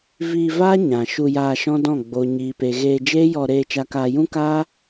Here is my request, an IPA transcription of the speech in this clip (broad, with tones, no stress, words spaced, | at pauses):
viː˧vaː˦ ɲã˨ ʃu˧jaː˧ʃɔ̃˦dɔ̃˦˨ ɡ͡bo˨ɲiː˨pe˨ ɣeː˧ d͡ʒeː˦jɔ˧ ɾeː˧t͡ʃa˧kaː˧ jũ˦kaː˦